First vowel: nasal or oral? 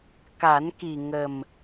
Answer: oral